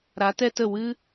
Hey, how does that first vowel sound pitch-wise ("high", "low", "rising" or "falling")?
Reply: rising